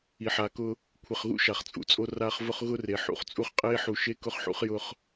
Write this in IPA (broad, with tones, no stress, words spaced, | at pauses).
i˨ħaː˨kʊ˦ | kʷʰɪ˨χɣṵ˦ ʃa˨χt͡sʼṵ˨t͡sʼo˦ raː˦χvʊ˦χ ɣʊ˦re˨ ħṵ˦χt͡sʼu˦χqʼeː˦ħu˨ ʃe˦kʊ˦χħṵ˦χjʊ˦χ